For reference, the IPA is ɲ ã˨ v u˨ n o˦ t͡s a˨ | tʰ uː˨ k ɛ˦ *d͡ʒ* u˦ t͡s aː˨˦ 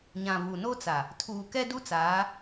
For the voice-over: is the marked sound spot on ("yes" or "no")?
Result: no